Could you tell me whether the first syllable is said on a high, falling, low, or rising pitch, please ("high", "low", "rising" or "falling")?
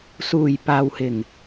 low